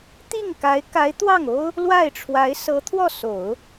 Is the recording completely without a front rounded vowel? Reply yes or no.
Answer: yes